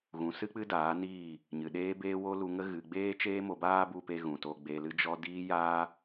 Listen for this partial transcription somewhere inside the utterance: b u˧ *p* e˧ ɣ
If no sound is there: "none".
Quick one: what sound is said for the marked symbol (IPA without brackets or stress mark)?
p